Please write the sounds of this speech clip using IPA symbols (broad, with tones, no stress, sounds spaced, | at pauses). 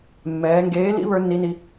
mː ɛː˩˧ ŋ ɡ eː˨˥ l ḭ˨˥ β ə˞˨˥ nː i˨˥ n i˩˧